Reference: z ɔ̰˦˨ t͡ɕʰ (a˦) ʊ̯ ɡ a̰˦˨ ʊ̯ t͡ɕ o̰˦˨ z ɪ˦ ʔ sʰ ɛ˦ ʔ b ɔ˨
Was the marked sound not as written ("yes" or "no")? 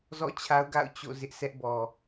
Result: no